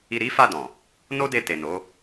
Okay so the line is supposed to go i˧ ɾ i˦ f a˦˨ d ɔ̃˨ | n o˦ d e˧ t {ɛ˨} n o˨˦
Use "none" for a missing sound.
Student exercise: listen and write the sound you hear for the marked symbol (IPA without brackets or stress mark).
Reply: e˨